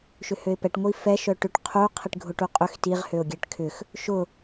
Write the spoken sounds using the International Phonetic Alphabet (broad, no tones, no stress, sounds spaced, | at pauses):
ʃ ʏ h ø ɪ̯ p ɛ ʈ ŋʷ i f ɛ ʃ œ ʈ ʏ ʈ qʰ u qʰ i ʈ ɡʱ ʊ ʈ u qʼ ʏ x t i ʁ h ø ʊ̯ ɡʲ ɛ ʈ kʰ ʏ x | ʃ ʊ